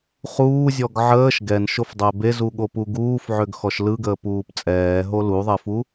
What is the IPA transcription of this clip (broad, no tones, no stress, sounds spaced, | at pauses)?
χ uː zʲ ɔ ɡ ʕ əː ʃ ɡ ɛ n ʃ o f dˤ ɛ b e z u ɠ o p u ɡ uː f ʕ ø ɡ x ɔ ʃ l ɯ ɡ əː p uː p t͡sʼ ɛː ɦ o l u ðˤ e f u